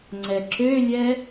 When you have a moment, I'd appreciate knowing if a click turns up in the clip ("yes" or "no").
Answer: yes